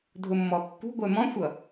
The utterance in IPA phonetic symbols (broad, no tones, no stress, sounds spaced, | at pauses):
dʱ ʊ mː ɔ kː ṳ ɡʷ ɛ m ɔ̃ xʷ ʌ